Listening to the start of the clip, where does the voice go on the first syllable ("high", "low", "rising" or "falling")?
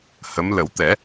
rising